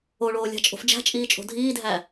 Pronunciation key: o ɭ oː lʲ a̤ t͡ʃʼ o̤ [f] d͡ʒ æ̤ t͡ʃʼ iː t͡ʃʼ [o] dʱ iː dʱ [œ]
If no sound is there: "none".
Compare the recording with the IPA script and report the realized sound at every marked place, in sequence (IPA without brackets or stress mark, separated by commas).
f, o̤, æ